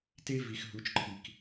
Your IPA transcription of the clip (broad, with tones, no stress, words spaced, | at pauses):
te˦vi˨x ɦu˨˦t͡ʃǃʰi˨k